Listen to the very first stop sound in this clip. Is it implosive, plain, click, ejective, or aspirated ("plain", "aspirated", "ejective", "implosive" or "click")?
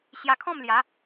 aspirated